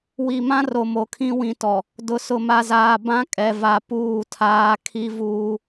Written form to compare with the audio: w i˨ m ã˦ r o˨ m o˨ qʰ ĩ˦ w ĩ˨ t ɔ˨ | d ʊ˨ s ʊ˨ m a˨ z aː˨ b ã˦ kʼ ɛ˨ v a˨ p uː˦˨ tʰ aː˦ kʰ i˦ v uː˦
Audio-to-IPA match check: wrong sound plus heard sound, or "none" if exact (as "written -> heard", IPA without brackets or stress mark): qʰ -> kʰ